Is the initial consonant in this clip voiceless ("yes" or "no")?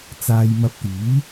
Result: yes